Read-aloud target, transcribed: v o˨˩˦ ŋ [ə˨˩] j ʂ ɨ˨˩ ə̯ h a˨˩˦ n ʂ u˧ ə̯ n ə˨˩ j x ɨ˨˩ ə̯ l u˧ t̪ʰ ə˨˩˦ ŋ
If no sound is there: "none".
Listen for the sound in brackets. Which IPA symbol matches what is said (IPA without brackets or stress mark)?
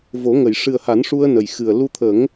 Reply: ə˨˩˨